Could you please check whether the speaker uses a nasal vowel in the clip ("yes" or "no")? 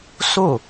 no